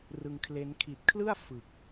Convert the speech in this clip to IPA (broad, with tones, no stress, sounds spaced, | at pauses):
r ɯ˧ ŋ kʰ l e˦˥ n kʰ i˨˩ t̚ kʰ l ɯ˥˩ a̯ f ɯ˨˩ k̚